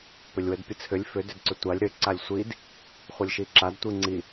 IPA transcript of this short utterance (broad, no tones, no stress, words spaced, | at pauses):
pʏlʲwədpʲət͡sʰʏlʲ fʏ dʏdǀʏtʷalʲ ɾʏ ǀalʲsʷid | χʷəlʲʃiǁad tʷiŋ͡ǀi